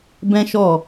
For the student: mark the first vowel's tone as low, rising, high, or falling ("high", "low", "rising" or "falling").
high